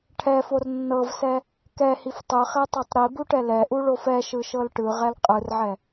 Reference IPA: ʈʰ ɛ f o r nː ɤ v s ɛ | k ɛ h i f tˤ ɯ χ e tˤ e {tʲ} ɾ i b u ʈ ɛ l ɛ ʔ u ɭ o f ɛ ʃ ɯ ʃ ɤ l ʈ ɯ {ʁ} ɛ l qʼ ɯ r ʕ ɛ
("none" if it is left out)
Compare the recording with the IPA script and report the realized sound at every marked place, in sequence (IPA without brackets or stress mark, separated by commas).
tˤ, ʁ